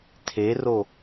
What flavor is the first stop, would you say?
aspirated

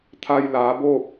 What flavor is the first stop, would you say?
aspirated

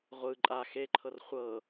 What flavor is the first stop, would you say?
click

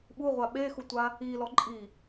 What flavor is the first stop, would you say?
implosive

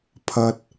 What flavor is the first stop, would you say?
aspirated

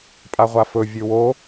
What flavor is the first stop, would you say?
ejective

